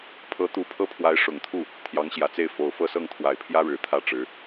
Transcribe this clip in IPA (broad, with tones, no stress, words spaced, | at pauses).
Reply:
pʰɤ˧˥ t̪u˧˥pʰɤ˥˩pʰwa˧˥ɪ̯ ʂʊ˨˩ŋt̪ʰu˥˩ | t̪ʰjɑ˧˥ŋɕjä˨˩t͡se˥˩ɪ̯ fo˨˩ʊ̯fɤ˥˧sɤ˥˩ŋ t̪ʰwa˨˩ɪ̯pʰjä˥ɻɻ̩˨˩ t̪ʰä˥˩ʈ͡ʂɻ̩˧˥